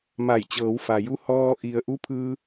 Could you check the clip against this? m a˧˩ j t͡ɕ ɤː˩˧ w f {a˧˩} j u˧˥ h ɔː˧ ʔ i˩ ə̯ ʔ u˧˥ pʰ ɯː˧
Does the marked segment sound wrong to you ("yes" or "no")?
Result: yes